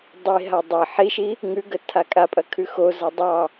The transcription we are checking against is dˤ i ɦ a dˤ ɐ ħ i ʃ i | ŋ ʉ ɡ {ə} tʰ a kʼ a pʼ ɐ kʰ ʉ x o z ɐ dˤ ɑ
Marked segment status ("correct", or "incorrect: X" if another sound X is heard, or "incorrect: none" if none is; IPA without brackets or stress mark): correct